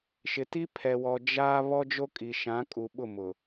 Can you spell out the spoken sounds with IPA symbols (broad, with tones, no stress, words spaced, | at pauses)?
ʃɪ˨ti˦pʰɛ˨wɔ˨ d͡ʒaː˦ βɔ˦d͡ʒo˦ kʼi˨ʃã˨˦kʼu˨ ɓʊ˦˨mʊ˨